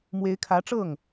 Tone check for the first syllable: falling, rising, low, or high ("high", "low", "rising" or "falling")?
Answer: rising